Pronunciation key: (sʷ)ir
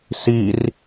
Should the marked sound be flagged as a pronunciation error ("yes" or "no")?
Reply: yes